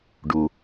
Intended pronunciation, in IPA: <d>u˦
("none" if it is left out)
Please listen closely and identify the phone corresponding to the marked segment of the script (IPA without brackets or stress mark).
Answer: ɖ